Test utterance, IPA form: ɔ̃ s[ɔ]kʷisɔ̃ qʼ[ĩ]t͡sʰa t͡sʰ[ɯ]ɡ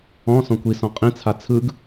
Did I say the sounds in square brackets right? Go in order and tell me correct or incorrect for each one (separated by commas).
incorrect, correct, correct